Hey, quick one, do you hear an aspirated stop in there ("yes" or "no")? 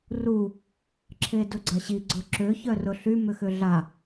yes